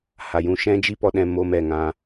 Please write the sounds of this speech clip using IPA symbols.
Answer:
ha˨jũ˧ ʃɛ̃˦d͡ʒi˦pɔ˧ɗɛ̃˧ mo˧mɛ˨ ŋã˧

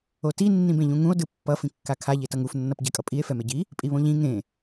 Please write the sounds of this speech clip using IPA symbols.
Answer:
oti nːĩbẽʎũŋũo̯ dɯpːʌ fĩkːakʰa ʎetʌŋuf nːʌpɟɛkʼʌpʼie̯ fɛmeɟi | pʼiβõʎĩ ŋẽ

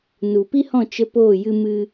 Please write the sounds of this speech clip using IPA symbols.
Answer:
nu˨pi˦hɔ̃˦˨ t͡ʃə˦ poː˦˨jɨ˦mɨ˦

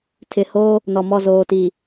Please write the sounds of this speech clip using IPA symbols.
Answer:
tʰɪ˨hoː˦ | nɔ˨mɔ˦˨ zoː˨ti˨

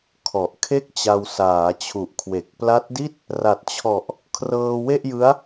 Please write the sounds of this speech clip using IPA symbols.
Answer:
kʰɔ˨˩ʔkʰe˥˩k̚t͡ɕa˧w saː˩˦t͡ɕʰu˨˩ʔ kʰwe˨˩k̚ pla˦˥t̚di˥˩t̚ | ra˨˩t̚t͡ɕʰɔ˨˩ʔ | kʰrɤː˧we˥˩ʔjɯ˦˥a̯

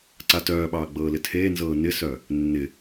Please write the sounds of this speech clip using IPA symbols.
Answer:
ǀatœːɓɑː ɡ͡bɤːlɪtʰeːnzɤː nɪsœ | nːɪ

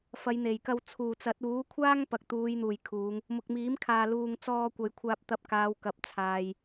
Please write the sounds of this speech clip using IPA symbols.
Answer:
fɐ˨˧jn̪e˨˩jkɐ˧w t͡sʰuː˨˩t͡sɐ˨˥t̚ uː˨˥kʷʰaː˥ŋ pɐ˨k̚t̪uː˨˧jn̪uː˨˩j kʰuː˨˧ŋ | mʊ˨k̚miː˨˥mkʰaː˨ luː˨ŋt͡sɔː˧kʷɐ˨j kʷʰaː˧p̚t̪ɐ˧p̚kaː˨˧w kɐ˨p̚t͡sʰaː˨j

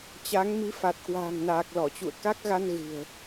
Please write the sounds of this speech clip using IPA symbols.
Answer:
t͡ɕa˨˦ŋmi˨˦ fa˨˩t̚kwa̤ː˨˩ŋnaː˨˩k̚ lɔ˧˩t͡ɕṵ˧˨ə̯ ka˦˥k̚ɣa˧n ɣɨ̤˨˩ə̯

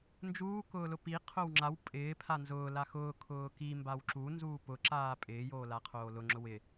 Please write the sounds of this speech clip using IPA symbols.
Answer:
nd͡ʒuːkʊːlʊ pi qʰowŋ͡ǁaw pʼɪː pʰanzʊː laxʊː kʰʊːki mbawǁu nzuːpʊǁaː pʼɪːjoːlaqʰoː lʊŋ͡ǁʊ wɪ

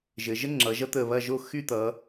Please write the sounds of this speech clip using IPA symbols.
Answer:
ʒɘ˩˧ʒə˥ ŋ͡ǁʌ˩˧ʒʌ˥t̪əː˧˩ βɐ˥˧ʒo˥˧ xy˥˧t̪ʌː˩˧

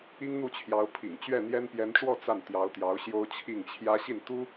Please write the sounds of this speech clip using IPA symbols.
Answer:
i˥ŋn̪u˥˩t͡ɕʰjɑ˧˥ʊ̯pʰḭ˨˩ŋ t͡ɕɥɛ˥˩n̪jɛ˥n pjɛ˧˥nʈ͡ʂwɔ˥˧ t͡sa˥˩n t̪jɑ˧˥ʊ̯t̪jɑ˧˥ʊ̯ɕjo˥ʊ̯ t͡ɕʰi˥˩ŋt͡ɕʰjä˥ ɕi˥˩n t̪u˥

